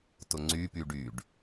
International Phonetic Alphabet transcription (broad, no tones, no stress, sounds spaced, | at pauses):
t ʊ ŋ͡ǀ y p y ɖ y ɖ